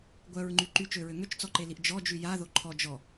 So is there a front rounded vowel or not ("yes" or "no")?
yes